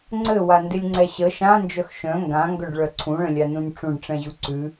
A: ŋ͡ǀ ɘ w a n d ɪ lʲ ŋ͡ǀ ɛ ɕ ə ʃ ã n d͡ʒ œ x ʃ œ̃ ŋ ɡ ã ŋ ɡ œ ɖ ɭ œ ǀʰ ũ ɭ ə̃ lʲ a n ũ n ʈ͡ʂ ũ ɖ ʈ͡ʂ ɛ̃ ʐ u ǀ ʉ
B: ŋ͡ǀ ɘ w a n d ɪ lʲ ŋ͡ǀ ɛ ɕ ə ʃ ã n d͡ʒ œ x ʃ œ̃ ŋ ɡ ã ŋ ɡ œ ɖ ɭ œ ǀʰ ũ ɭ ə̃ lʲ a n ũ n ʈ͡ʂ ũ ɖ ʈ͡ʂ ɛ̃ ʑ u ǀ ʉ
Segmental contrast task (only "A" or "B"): B